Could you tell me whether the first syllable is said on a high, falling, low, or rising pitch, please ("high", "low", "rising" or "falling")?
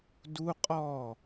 high